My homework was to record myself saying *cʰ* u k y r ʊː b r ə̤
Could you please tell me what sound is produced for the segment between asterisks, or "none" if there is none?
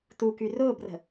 t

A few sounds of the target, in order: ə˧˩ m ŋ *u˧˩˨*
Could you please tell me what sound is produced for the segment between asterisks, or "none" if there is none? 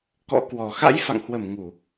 u˧˩˨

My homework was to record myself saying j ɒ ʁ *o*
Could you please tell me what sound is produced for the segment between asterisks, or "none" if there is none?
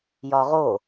o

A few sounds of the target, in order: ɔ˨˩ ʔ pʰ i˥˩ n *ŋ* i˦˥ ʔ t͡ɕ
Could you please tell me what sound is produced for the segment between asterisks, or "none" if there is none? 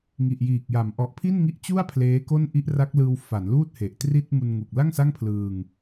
ŋ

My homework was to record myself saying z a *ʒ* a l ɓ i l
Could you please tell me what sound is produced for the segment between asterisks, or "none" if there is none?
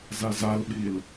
z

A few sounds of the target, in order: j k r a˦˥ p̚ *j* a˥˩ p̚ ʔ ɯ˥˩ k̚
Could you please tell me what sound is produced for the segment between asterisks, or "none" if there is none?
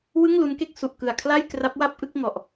w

